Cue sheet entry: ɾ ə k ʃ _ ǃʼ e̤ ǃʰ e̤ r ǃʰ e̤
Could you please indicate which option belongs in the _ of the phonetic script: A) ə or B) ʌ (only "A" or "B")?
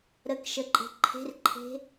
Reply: A